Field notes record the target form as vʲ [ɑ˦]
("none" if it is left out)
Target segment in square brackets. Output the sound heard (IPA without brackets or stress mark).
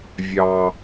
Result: ɑ˦